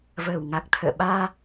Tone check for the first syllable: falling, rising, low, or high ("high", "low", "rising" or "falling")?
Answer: low